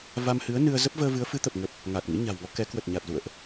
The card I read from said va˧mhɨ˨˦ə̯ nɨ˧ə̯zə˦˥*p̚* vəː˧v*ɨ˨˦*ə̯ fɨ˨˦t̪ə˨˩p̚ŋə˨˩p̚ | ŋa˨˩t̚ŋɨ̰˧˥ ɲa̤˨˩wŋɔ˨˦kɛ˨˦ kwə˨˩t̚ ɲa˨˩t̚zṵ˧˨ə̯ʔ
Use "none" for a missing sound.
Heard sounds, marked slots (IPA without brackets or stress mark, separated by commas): p̚, ɨ˨˦